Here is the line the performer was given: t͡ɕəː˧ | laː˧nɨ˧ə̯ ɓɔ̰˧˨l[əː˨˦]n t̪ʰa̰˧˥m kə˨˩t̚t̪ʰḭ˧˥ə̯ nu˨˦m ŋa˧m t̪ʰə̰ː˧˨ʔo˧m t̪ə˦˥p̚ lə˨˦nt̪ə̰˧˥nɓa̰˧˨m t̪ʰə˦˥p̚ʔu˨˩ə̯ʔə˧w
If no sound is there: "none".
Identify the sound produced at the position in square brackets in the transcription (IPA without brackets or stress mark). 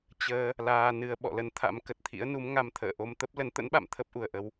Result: ə˨˦